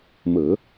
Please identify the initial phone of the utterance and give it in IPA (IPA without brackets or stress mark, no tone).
m